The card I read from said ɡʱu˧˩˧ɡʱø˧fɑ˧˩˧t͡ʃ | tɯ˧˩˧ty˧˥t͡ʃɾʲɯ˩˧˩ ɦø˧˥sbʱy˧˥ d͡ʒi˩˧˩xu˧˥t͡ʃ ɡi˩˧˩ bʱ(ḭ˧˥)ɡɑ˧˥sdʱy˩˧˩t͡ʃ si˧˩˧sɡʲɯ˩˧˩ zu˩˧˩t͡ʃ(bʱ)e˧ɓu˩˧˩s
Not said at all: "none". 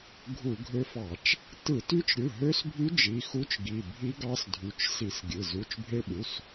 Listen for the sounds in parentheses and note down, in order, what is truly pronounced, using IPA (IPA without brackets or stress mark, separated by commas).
i˧˥, bʱ